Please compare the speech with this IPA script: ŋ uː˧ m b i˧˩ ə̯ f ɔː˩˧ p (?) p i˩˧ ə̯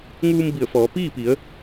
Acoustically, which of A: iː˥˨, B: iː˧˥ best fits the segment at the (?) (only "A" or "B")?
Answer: A